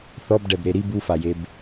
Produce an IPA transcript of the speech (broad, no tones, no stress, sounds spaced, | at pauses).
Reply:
θ ɔ b ɖ ɛ b ɾ e ɾ i b u f a j e b